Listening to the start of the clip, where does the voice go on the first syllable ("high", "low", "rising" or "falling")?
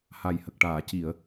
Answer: low